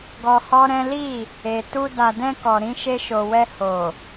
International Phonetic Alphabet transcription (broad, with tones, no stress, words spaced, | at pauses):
ɡɔ˧hɔ˦ɾɛ̃˦ li˦˨ | e˨tu˧ da˨dɛ̃˧ kɔ˨ ɾĩ˧ʃe˧ʃo˨wɛ˧ ho˨